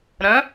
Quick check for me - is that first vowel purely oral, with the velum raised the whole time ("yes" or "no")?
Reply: no